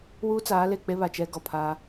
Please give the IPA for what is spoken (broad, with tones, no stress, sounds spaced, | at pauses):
w uː˦ t͡s aː˨˦ l e˨ k͡p e˦ β a˨ t͡ʃ ɛ˦ ɡ ɔ˨ pʰ a˦